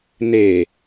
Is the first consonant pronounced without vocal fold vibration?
no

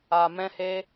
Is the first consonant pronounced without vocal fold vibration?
no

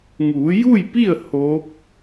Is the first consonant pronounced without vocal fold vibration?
no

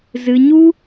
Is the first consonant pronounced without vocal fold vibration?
no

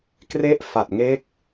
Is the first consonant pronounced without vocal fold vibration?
yes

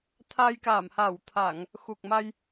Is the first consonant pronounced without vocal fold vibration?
yes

